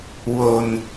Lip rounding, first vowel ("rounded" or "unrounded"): rounded